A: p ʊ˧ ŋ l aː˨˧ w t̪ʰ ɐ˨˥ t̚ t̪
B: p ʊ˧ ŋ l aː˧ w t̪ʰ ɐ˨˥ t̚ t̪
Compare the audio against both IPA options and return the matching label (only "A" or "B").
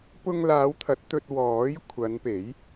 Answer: A